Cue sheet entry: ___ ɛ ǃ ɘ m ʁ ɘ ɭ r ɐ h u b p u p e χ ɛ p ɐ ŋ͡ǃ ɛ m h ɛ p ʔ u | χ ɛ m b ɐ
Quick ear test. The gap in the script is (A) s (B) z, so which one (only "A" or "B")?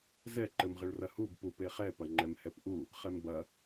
B